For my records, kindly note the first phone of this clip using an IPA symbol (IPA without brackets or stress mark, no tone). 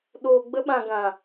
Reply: ɗ